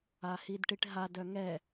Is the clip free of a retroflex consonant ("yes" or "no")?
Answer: no